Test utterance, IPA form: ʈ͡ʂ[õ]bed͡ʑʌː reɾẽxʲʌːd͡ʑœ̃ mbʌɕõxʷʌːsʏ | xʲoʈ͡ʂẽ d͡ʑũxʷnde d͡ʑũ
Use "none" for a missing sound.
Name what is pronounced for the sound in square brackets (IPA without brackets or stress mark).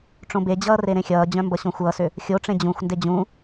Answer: õ